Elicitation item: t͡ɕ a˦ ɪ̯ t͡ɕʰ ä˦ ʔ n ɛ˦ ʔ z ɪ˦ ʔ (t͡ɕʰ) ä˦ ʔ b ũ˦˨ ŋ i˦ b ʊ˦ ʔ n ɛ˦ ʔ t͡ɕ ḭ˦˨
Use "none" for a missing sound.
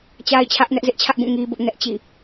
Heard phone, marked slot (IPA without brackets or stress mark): t͡ɕʰ